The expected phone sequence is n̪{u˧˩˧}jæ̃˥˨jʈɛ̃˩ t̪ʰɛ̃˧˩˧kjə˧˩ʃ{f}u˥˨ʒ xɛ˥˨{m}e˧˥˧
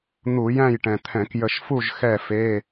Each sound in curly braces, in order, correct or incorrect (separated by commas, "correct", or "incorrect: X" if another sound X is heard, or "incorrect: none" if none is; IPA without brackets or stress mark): correct, correct, incorrect: f